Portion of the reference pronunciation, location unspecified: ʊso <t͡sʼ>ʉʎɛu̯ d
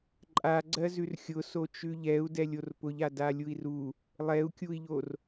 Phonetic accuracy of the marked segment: incorrect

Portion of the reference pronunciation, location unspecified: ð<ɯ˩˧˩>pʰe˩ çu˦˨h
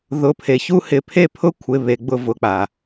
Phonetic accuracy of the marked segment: incorrect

